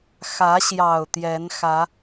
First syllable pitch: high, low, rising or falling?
rising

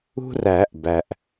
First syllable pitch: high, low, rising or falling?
high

